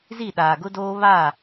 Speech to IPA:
z i˦˨ ɗ aː˨ ɡ ʊ˦ d oː˦ β aː˦˨

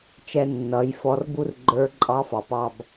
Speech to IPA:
t͡ʃ ɛ˧ nː ʌ˩˧ j f ɔ˧ r b u˥ r ɡ͡ǃ ə˞˧˥ ǃʼ ɑ˧˥ f ɑ˩ p ɑ˧ b

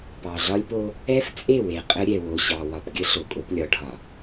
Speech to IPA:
p ɑ˨ ɮ ɒ˦ lʲ p o˦ | ɛ˦ f t͡sʼ e˦˨ w e˨ qʼ ə˦ ɾʲ ɛ˨ w o˨ ɕ ɑ˨ w ɒ˨ p ɡʲ ə˦ ɬ o˨ kʼ o˦ p lʲ ɒ˨˦ ɖʱ ɒ˨

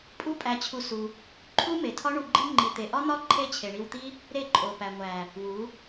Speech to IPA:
pʼ u˦ pʼ æ˧ t͡ɕʰ u˧ s u˧ | ǃʰ u˦ m e˨ tʰ ɒ˦ ɳ u˧ ɡ͡ǃ i˦ ŋ͡ǃ i˨ t̪ e˨ ʔ ɒ˦ n̪ ɒ˦ ǃʰ e˦ t͡ɕʰ e˨ ɳ i˧ w t̪ i˦ | ɾ e˦˨ ǃʼ o˨ p æ˨ ŋʷ æ˨ | w u˨˦

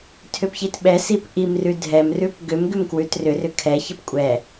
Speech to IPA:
tʰ ʏ p ç i t ɓ ɛ s i p ʔ i m r ʉ dʱ ɛ m r ʉ p ɡ ʏ m ɡ ʏ m k w ʉ t r ʏ r ʏ kʰ ɛ ç ə p kʷʼ ɛ

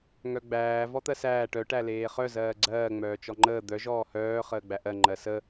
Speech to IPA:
ŋ œ ɡ͡b æː v ɔ t̪ ɜ s æː ʈ œ ʈ æ l eː χ œ z ɜː ɡ͡ǀ ɜː ŋ͡m œː t͡ʃ ɔ ŋ͡ǃ əː d̪ œ ʒ ɔː h œː χ əː ɡ͡b æ ʔ ɜ ŋ͡ǃ ɜ s ə

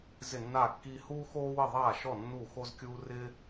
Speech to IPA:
z ɪ˥˧ nː aː˥˧ kː iː˥ h uː˥ x oː˥ w ɪ˥˧ ðˤ aː˥˧ ʃ ɔ˥˧ nː u˥˧ x o˥ z kʲ uː˥ r ɪ˥

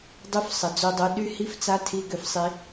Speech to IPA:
dˤ ø˦ f sˤ ə˨ d͡z o˧ dˤ o˧ ɗ y˦ h i˦ f t͡s a˦ tʰ i˧ ɡ ʏ˧ f sˤ i˧

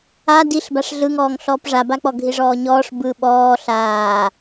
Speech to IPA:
a d i ɬ b a ʂ ɮ ɯ ŋ ɔː ŋ ɬ ɔː p ʐ a b a k͡p ɔ ɡʱ i ʐ ɔː ɲ ɔː ʂ b ɯ ɓ ɔː ɬ aː

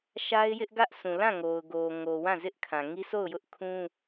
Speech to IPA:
ʃ a˦ ɪ̯ j ɪ˦ ʔ ɡ ä˦ ʔ s ũ˨ l ã˦˨ ŋ o˨ ʊ̯ ɡ o˨ ŋ o˨ w ã˦˨ z ɪ˦ ʔ kʰ ã˨ ŋ i˦ sʰ o˦˨ ʊ̯ j ʊ˦ ʔ kʰ ũ˦

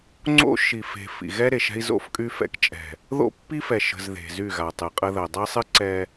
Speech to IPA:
ŋ͡ǀ o̰˦ ʃ i˨ f e̤˨ f ḭ˨ ɣ ɛ˦ ɾ e˨ ʃ ɛ̤˦ i̯ z o̰˦˨ f kʼ y˦ f ɛ̰˦ k t͡ʃʼ ɛ̤˨ | ð o̰˦ pː i˦ f ɛ˨ ʃ ə̤˨ z ð e̤˨ z y˦˨ ɣ a˨ tˤ ɨ˨ qʼ ə˦ ð ɜ˨ dˤ ɛ˦ sˤ ɨ˦ ǀ ɛ˦

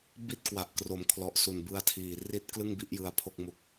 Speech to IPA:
b i˥˩ t̚ k w a˨˩ ʔ k r o˩˦ m kʰ l ɔ˨˩ ʔ s u˨˩ n b ɯ˧ a̯ tʰ iː˨˩ r i˥˩ t̚ k l ɯ˥˩ ŋ b i˥˩ ʔ j ɯ˦˥ a̯ pʰ o˥˩ k̚ m u˦˥ k̚

